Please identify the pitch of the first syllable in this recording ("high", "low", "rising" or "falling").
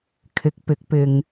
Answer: rising